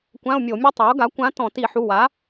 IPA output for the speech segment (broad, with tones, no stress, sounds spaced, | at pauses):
kʷ ã˧˥˧ ʊ̯ mʲ o˧˩˧ mʲ ɤ˥ tˤ a˩˥ ʊ̯ ɡ a˩˥ kʷ ã˧˥ t ɔ̃˧˩˧ t i˧˩˧ ħ u˩˧˩ w a˩˥